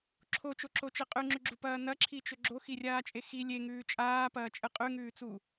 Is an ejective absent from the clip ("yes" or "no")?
no